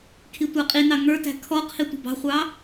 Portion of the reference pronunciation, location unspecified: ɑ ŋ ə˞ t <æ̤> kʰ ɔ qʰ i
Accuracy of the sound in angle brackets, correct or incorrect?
correct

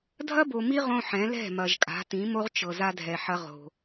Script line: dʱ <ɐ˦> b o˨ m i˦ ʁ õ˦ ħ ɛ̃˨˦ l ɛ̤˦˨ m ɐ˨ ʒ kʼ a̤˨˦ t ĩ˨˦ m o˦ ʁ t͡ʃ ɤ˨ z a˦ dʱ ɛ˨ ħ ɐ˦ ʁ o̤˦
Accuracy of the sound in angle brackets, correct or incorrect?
correct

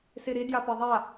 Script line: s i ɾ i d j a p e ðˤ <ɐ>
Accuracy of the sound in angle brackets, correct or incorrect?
incorrect: a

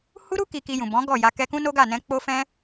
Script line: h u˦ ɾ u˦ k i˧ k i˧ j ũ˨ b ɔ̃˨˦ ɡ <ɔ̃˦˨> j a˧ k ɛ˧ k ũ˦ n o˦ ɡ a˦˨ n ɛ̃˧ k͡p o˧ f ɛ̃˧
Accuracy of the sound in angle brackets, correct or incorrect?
incorrect: ɔ˦˨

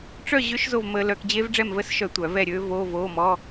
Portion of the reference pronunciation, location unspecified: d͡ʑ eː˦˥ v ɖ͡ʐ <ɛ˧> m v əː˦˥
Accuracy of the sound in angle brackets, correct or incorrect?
incorrect: ɛ˥˨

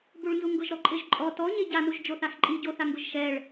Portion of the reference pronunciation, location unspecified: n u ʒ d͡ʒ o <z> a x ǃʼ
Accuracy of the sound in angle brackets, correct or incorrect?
incorrect: θ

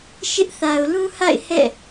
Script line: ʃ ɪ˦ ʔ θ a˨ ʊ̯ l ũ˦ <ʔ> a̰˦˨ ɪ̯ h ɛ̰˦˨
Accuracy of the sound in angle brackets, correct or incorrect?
incorrect: h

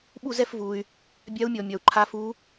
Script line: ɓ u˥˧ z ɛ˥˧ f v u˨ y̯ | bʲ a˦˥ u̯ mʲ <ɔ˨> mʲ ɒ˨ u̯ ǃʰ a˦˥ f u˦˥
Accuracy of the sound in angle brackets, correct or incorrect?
correct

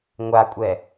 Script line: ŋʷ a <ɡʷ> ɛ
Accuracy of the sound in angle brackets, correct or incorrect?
incorrect: kʷʼ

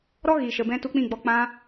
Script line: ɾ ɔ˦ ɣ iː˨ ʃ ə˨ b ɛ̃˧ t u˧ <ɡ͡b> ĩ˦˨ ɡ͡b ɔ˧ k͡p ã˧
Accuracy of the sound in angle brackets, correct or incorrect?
incorrect: k͡p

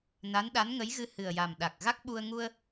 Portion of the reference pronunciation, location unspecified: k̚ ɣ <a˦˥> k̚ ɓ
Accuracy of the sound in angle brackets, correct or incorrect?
correct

